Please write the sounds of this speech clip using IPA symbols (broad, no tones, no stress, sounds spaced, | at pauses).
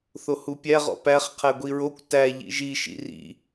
θ o h u pʲ æ ʁ ɔ̰ p æ χ qʰ æ ɡʷ i ɹ o kʷ t æ ʎ ḭ ʒ i ʃ ḭ r ḭ